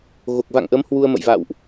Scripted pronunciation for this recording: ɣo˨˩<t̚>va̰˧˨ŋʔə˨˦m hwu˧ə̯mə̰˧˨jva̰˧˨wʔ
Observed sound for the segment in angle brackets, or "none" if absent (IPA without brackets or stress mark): k̚